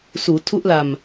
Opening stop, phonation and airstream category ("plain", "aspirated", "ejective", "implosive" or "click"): aspirated